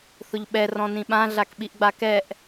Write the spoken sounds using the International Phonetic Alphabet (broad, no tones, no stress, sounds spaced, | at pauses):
θ ʊ ʎ ɓ ɛ r ɔ̃ n ĩ ɓ ã ɮ a k ɓ i ʔ ɡ͡b a k ɛ ʔ